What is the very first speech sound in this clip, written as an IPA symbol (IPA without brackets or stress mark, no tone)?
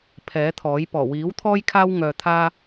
pʰ